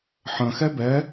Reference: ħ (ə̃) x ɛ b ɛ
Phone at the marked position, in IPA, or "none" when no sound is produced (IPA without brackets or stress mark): ə̃